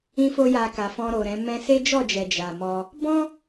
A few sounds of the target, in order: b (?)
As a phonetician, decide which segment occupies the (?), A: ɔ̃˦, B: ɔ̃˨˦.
A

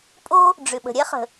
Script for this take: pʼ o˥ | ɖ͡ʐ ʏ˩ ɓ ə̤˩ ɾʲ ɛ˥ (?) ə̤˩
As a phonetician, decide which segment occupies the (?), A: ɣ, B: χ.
B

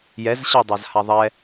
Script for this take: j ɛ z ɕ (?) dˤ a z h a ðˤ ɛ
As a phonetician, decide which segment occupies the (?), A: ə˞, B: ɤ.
B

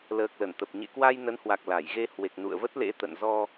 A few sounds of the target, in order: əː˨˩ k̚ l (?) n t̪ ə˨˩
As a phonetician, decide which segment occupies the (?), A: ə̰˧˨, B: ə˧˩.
B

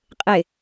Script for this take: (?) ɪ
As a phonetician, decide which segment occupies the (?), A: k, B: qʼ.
B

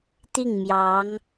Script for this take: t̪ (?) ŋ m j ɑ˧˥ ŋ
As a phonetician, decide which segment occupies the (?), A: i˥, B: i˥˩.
B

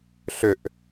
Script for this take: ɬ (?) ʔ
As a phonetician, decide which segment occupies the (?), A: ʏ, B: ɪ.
A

